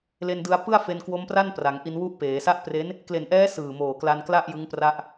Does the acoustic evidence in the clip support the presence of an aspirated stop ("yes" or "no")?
no